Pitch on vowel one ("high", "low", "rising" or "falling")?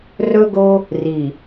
high